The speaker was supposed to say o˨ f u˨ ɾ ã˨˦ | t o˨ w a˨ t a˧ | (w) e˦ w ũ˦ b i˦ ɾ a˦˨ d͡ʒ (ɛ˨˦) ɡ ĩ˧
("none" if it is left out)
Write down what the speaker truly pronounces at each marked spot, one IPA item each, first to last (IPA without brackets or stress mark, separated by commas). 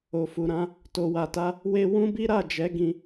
w, ɛ˨˦